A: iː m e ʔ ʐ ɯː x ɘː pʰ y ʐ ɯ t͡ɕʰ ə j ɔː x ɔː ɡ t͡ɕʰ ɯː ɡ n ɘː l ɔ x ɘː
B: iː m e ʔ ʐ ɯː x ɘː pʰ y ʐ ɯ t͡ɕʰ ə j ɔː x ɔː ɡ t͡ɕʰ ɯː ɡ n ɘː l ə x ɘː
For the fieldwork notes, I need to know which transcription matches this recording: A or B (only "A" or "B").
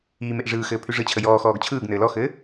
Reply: A